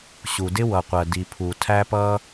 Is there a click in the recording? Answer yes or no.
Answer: no